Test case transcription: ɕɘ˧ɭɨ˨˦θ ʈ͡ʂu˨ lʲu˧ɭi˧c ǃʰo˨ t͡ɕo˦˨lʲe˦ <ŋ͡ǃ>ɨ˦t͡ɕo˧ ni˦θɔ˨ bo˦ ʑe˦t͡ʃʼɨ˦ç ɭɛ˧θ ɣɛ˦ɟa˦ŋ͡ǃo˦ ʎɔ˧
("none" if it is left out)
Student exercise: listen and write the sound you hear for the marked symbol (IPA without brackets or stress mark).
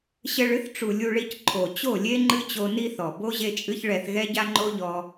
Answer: ŋ͡ǃ